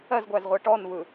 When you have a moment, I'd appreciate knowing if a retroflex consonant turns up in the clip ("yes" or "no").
yes